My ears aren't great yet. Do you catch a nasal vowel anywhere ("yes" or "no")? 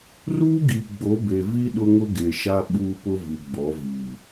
no